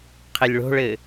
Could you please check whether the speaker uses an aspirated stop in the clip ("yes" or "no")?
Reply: yes